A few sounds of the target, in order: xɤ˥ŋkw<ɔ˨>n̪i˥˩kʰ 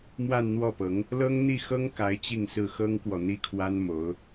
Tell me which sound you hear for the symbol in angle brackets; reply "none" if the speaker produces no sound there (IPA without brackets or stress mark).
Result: ɔ˨